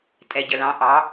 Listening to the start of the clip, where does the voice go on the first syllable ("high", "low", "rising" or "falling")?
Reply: low